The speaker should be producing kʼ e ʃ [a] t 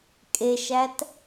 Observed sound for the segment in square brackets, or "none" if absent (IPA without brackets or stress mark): æ